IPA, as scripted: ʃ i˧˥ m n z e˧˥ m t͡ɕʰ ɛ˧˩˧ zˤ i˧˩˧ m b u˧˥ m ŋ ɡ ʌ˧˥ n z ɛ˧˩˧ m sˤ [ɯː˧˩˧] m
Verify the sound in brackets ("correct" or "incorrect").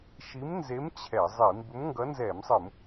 incorrect